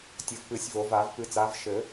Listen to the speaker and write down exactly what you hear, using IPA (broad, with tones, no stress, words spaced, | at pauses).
tʲɘ˨˩˦vpɨ˨˩˦sʲvo˨˩˦va˨˩˦v pɨ˨˩˦t͡sa˨˥v ʃɘ˨˩˦